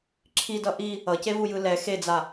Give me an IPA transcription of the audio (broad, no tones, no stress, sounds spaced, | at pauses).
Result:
ǁʰ i d ʌ ʔ i | ʌ c e v u j ɯ l ɛ x e d͡z a